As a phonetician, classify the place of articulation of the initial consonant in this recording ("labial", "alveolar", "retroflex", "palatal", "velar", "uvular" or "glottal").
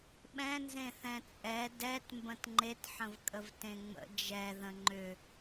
labial